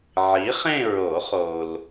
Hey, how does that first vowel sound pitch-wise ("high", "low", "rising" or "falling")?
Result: rising